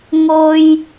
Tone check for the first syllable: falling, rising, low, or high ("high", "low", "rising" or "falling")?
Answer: high